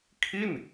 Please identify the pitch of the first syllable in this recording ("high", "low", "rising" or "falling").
falling